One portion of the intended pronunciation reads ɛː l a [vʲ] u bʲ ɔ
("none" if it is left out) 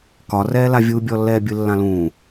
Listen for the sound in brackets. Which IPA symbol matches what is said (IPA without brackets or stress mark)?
vʲ